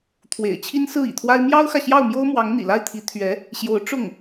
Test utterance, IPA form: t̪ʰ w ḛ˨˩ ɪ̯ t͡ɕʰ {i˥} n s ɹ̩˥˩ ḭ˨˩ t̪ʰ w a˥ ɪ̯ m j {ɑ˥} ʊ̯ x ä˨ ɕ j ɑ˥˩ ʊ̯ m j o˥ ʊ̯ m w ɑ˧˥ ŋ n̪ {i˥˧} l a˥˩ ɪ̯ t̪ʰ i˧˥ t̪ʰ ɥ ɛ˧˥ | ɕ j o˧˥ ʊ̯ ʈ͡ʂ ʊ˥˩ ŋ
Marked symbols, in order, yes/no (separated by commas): yes, yes, no